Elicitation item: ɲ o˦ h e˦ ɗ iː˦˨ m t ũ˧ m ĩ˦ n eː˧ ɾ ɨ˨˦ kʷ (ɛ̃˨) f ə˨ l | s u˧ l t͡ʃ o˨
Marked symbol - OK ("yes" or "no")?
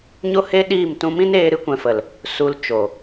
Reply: yes